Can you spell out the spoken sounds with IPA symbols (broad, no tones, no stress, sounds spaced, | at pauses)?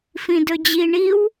f ĩ d ɵ d͡ʑ i ɳ i w